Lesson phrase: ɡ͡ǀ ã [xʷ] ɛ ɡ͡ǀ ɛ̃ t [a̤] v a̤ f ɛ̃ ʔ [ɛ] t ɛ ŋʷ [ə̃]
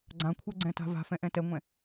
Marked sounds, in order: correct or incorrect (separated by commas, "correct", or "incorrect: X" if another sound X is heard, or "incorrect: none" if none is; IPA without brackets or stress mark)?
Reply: incorrect: kʷʰ, correct, incorrect: ɛ̃, incorrect: ɛ̃